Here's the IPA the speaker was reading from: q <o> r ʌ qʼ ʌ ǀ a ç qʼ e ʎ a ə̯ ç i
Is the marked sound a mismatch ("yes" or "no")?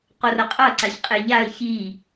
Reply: no